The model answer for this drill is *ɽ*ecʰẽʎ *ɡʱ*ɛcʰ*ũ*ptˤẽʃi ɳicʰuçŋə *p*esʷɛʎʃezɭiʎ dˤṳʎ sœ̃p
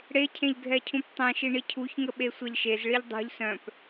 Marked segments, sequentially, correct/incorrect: correct, correct, correct, incorrect: ɓ

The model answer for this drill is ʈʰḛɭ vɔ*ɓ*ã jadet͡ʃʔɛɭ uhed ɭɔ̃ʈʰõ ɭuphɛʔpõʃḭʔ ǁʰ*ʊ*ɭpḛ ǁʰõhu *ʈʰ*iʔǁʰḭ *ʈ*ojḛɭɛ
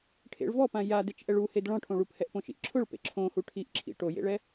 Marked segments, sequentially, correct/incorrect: incorrect: p, correct, correct, correct

